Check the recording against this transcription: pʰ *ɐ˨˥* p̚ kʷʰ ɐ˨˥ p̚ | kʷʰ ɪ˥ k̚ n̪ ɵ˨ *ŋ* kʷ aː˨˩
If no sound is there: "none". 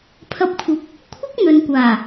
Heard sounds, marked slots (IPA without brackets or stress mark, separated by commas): ɐ˨˥, n